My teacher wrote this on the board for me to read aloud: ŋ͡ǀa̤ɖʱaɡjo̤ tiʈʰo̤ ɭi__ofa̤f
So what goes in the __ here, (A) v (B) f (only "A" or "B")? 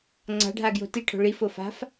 B